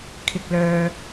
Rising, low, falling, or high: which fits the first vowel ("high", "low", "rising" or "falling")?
low